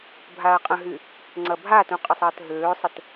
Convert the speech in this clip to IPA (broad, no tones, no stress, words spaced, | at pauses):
bʱaɐ̯qʼə̃ɦy | ŋ͡ǀɐbʱatũ qʼəsˤəːtɦøːsˤət